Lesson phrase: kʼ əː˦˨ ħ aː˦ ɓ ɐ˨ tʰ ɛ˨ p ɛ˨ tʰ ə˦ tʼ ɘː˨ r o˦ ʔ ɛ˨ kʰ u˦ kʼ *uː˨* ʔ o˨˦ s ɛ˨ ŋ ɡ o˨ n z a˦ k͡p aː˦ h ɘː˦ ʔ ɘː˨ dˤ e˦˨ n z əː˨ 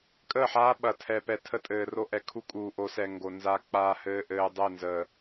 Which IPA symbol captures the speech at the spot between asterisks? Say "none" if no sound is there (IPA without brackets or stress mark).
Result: uː˨